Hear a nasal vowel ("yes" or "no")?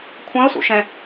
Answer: yes